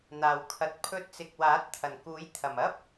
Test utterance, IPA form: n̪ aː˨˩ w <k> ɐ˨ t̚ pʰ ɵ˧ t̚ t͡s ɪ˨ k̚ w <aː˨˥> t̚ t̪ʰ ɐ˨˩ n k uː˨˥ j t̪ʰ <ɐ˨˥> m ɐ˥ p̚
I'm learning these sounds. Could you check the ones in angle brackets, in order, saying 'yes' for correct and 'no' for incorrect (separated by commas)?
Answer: no, yes, no